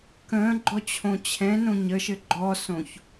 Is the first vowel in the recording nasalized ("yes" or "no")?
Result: yes